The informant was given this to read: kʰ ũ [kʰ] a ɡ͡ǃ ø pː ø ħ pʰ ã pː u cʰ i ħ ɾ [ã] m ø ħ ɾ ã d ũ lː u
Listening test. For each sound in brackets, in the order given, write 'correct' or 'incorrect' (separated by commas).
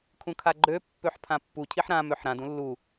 correct, correct